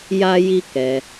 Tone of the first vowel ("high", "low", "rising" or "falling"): high